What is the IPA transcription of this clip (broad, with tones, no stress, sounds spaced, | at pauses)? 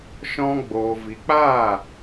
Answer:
ʃ ɔ̃˦ ɡ͡b oː˨ v i˨ k͡p aː˦˨